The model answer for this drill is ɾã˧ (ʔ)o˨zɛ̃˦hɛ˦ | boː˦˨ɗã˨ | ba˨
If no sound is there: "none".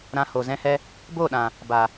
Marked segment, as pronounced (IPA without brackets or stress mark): h